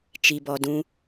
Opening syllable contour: low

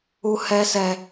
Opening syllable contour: high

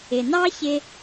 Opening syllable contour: low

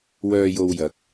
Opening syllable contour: low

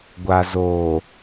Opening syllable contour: low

